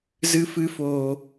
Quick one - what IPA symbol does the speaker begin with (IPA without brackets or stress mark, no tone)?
z